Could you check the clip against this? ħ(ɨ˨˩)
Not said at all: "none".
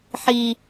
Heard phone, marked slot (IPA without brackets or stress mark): i˨˩